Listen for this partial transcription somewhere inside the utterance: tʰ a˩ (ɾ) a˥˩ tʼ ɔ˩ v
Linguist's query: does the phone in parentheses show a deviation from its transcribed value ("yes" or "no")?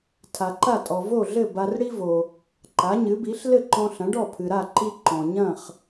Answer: yes